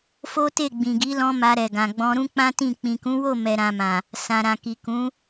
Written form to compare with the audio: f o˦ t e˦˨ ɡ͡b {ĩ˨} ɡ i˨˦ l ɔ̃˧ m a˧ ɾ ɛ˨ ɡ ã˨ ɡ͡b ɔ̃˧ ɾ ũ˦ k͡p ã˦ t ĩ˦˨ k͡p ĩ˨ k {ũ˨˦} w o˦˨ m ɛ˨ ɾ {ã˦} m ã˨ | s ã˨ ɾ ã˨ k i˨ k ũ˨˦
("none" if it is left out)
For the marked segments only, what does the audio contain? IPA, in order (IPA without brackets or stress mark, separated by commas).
ĩ˨, ũ˨˦, ã˨